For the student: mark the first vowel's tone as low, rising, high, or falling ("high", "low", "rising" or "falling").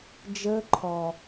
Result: high